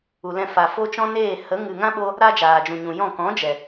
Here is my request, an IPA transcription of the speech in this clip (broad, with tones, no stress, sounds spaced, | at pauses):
u˨ l ɛ̃˧ f a˨ f o˦ t͡ʃ ɔ̃˦ n eː˦˨ h ə˨˦ ŋ ɨ˨ ŋ ã˦ ɓ o˧ | ɾ a˦ d͡ʒ aː˨ d͡ʒ ũ˨ ɲ ũ˨ j ɔ̃˦˨ k ɔ̃˨˦ d͡ʒ ɛ˨